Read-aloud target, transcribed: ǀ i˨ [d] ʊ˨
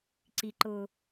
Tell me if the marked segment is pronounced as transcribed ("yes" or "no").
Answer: no